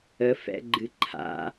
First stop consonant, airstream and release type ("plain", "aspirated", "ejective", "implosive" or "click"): click